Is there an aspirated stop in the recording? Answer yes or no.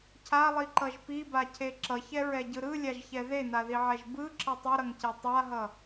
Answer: yes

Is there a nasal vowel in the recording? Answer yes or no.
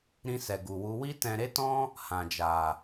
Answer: yes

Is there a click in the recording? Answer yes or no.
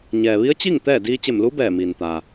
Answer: no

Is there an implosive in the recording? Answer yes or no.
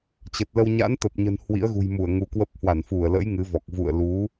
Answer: no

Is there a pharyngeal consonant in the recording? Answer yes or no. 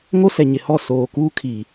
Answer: no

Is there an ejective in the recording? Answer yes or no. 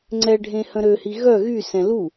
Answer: no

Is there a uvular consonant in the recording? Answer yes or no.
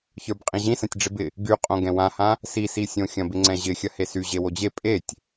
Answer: yes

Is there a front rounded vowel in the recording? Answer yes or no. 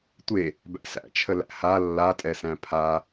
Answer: no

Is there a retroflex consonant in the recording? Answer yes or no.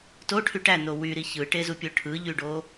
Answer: yes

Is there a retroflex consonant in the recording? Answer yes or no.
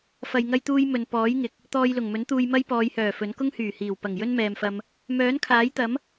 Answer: no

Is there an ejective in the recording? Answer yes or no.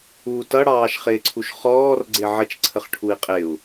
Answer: yes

